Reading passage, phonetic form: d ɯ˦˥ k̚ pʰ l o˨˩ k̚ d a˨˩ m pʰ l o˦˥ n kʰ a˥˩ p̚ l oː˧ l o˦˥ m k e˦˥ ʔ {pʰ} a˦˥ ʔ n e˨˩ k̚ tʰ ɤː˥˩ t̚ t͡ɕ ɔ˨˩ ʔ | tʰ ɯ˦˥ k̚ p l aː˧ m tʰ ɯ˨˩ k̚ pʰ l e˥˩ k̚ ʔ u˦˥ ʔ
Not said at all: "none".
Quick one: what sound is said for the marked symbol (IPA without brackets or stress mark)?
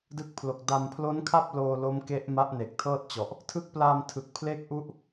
m